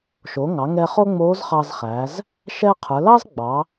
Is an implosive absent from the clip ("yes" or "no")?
yes